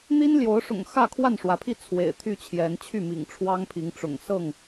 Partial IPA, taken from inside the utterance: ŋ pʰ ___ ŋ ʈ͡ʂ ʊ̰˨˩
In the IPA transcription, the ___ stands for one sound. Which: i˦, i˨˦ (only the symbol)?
i˨˦